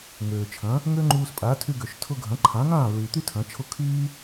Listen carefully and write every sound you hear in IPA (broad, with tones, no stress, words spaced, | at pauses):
ŋøː˩ t͡ʃʰɐ̃˩˥ | ŋø˥ŋ͡ǃuː˧spʼa˩˥ tʰy˧ɡø˩ʃ tʰʊ˧ ɡʱɐ̃˩˥ǃʰã˩˥ŋãː˥˩ ɹy˩t̪y˥ tʰɐ̃˩˥t͡ʃʰʊ˥˩ kʰyː˥